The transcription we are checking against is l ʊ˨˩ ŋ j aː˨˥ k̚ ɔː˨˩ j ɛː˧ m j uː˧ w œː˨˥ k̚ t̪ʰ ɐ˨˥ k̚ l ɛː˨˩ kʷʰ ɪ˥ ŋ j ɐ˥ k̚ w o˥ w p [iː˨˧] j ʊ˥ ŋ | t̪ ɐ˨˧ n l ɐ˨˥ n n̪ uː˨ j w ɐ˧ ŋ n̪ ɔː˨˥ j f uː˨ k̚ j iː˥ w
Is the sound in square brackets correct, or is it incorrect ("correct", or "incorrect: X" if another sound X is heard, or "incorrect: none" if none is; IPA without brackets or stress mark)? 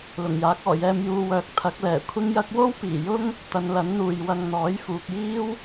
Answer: incorrect: iː˨˩